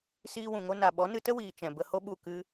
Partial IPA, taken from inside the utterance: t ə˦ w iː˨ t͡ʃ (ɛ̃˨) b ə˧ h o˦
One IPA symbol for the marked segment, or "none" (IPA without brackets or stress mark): ɛ̃˨